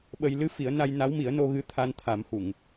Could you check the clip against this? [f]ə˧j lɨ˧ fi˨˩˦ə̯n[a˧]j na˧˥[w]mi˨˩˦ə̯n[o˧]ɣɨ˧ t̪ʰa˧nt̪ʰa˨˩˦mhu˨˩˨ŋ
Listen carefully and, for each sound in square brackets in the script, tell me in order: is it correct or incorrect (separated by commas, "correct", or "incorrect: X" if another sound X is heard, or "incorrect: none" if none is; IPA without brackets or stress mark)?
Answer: incorrect: ɓ, correct, correct, correct